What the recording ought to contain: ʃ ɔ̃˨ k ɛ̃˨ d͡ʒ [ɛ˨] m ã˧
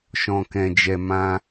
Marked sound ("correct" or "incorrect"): correct